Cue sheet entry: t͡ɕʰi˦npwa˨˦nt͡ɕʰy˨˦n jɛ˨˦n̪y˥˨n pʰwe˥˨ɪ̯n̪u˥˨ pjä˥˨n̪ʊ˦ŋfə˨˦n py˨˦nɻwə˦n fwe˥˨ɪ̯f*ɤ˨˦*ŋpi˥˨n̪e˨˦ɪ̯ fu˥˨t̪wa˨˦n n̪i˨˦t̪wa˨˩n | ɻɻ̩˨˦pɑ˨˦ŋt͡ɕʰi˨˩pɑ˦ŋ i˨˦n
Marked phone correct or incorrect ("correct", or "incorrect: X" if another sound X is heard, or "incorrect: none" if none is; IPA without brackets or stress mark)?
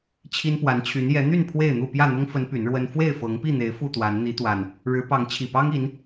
correct